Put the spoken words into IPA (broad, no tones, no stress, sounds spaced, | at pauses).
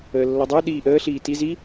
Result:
əː lː ɔ dˤ ə˞ ɗ iː ʔ əː ɬ iː t i z i